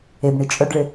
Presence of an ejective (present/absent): present